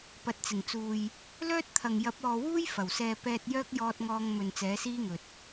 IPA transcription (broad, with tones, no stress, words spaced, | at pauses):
pɐ˨t̚t͡sɪ˨˩ŋt͡suː˨j | lœː˥t̚t̪ʰɐ˨ŋ jɐ˨˥p̚ ɔː˨wuː˥j fɐ˨˩wsɛː˧ pɛː˧t̚jœː˥k̚ jɔː˧t̚ŋɔː˧ŋ mɵ˨nt͡sɛː˨˥siː˥ŋɵ˨t̚